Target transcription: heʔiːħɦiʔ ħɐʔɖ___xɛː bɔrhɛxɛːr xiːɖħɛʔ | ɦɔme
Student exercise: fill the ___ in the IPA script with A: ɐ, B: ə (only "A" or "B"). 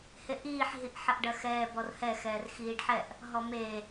A